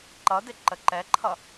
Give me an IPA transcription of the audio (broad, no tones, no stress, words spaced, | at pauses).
ǃʌdɪ ǃəǃɛǃʰʌ